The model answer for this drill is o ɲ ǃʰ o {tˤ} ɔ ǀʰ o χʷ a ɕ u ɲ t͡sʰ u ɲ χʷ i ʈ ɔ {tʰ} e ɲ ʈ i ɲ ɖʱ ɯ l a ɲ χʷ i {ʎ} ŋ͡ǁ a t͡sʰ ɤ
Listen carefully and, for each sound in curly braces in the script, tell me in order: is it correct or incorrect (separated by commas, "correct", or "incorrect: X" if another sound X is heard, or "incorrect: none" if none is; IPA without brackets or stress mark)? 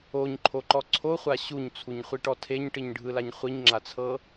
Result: incorrect: ǃ, correct, incorrect: ɲ